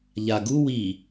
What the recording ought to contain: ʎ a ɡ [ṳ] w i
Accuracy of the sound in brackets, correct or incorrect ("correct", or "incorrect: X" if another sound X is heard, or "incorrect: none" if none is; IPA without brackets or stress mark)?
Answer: incorrect: u